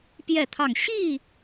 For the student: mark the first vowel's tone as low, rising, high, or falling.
falling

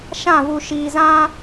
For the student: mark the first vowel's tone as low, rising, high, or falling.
falling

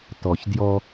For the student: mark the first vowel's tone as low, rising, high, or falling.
low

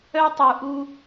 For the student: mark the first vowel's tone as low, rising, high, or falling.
high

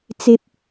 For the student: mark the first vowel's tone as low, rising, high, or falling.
high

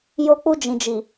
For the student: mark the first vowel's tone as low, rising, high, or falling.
high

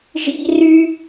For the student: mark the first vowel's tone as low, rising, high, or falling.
high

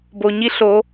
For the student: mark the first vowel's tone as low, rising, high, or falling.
low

